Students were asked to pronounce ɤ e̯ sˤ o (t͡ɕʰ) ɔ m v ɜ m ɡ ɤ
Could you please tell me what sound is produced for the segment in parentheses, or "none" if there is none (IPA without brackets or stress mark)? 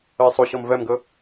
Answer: ɕ